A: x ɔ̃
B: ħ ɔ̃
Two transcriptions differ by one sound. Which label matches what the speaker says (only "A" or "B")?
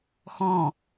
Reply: A